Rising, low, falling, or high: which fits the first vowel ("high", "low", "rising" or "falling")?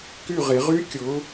falling